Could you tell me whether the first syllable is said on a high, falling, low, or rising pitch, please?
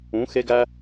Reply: rising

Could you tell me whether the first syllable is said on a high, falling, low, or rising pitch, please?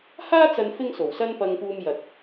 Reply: high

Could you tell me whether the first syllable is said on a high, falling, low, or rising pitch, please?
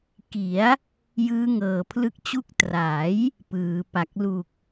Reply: rising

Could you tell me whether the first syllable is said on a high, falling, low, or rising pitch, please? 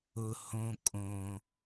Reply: low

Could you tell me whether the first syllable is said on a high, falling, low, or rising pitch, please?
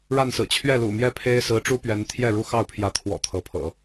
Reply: falling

